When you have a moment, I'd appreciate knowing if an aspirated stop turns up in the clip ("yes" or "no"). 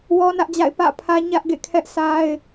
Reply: yes